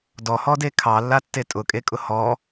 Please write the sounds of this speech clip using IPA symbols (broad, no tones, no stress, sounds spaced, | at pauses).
d ɔ h ɔ d e kʰ ɑ lː a tː e tʼ ʊ kʼ e kʼ ʊ h ɔ